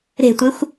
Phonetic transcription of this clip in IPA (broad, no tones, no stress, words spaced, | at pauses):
ɾe̤tʷexʷ